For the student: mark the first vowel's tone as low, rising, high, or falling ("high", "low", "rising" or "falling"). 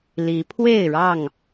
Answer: rising